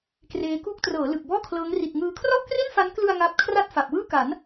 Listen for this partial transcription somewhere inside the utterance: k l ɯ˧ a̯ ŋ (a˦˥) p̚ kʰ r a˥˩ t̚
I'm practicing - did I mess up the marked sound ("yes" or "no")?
no